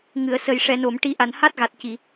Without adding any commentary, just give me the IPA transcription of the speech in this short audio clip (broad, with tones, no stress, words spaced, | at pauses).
ŋɨ˨˩˨ə̯sə˨˩j ʂɛ˨˩˨no˨˩˨mʈi˨˩˦ ʔa˨˩˨nha˦˥t̚ɣa˨˩t̚ ci˨˩˨